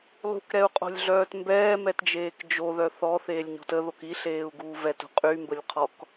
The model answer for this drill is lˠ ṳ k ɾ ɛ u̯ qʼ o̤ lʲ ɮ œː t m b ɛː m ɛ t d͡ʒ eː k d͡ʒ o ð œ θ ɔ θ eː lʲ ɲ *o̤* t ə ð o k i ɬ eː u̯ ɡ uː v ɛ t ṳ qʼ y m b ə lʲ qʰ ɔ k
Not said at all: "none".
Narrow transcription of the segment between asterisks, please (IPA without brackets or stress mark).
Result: o̤